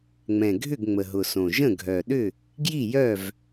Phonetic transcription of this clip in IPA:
ŋ͡m ɛ̃˨˩ ɡʱ ʏ˥˨ ɡ ŋ͡m ə˨˩ ɦ ʊ˨˩ s õ˨˩ ʒ ə̃˥˨ ɡʱ œ˨˩ ɗ ʏ˥˨ | ɡ j i˥˨ j œ˥˨ v

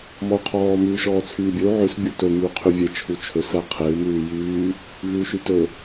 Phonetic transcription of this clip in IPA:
m ɔ u̯ qʰ ɔː m ʉː ʃ ɔː t͡sʰ yː bʲ ɵ u̯ ʕ ʉ s bʲ u t ɵ m yː qʰ y vʲ e t͡ʃʰ u t͡ʃʰ ɵ s æ qʰ e u̯ m ʉː j yː | v ʉː ʃ y t ɵ

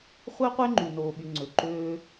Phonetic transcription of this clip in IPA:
χʷ e˦ qʷ e˦ ŋ͡ǃ y˨ n oː˨ ɓ y˨ ŋ͡ǀ ø˨ ǃ øː˧

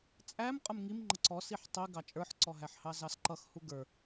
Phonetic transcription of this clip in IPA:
t͡sʼ æ m qʼ ʊ m ŋ i m ŋ͡ǃ ə ǀ ɔ s i ħ tˤ i ɡ ɑ t͡ʃʼ ə˞ ħ ǀ ɔ ɦ æ ħ h ɑ z ɑ s ǃ ʌ x h u ɡ ə˞

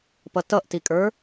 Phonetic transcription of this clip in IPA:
p ʌ t ʌ ʔ t i kʼ ə˞

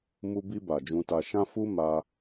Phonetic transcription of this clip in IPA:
m u˧ b i˧ b a˨ d͡ʒ ũ˧ t a˧ ʃ ã˦ f u˦ m a˦

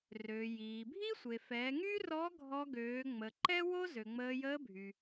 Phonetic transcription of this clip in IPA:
r øː˩ j iː˩ bʱ i˥ sʷ e˩ f ɛ˩˧ ŋ y˥ r ɔ˧˥ ɡʱ ɔ˧ ɡ øː˩˧ ŋ͡m ə˩ ǃ ɛ˥ w o˥ z ø˩ ŋ͡m əː˧ j əː˧˥ bʱ y˩

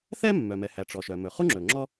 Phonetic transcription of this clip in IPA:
θ ɛ˥ mː œ˩ m ɛ˩ h æ˩ ʈ͡ʂ ɔ˩ ʃ œ˩ m ɵ˩ χ u˥ ŋ͡ǁ ɵ˩ ŋ͡ǁ ɔ˥

